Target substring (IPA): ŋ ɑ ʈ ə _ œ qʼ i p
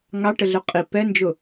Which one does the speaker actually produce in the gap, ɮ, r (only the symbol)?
ɮ